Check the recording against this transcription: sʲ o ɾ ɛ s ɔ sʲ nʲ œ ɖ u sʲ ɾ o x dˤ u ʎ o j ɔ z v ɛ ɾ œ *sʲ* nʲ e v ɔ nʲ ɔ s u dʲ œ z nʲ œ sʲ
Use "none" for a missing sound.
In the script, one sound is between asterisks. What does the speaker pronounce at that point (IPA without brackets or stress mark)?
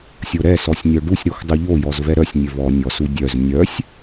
sʲ